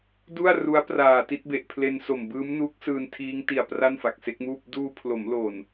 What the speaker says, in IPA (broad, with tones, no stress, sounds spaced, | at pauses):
d u˥˩ a̯ r u˦˥ a̯ p r aː˨˩ t i˥˩ t̚ b e˨˩ ʔ pʰ l e˧ n s o˨˩ m b ɯː˦˥ m n uː˦˥ k̚ s ɯː˧ n tʰ iː˦˥ ŋ t i˨˩ a̯ p r a˥˩ n f a˨˩ k̚ s e˦˥ k̚ m uː˥˩ p̚ d uː˧ pʰ l o˩˦ m l o˨˩ n